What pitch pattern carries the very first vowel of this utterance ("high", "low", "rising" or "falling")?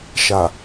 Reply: low